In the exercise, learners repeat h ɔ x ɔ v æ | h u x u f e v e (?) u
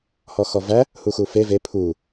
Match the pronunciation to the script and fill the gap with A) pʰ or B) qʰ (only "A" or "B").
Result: A